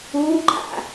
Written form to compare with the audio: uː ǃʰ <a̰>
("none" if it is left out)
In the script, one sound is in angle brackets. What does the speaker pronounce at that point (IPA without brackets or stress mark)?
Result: a̰